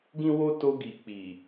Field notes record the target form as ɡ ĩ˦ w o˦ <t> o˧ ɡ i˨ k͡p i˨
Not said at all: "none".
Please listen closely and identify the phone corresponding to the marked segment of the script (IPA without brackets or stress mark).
t